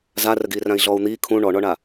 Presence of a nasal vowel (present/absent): present